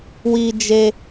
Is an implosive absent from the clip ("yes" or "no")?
yes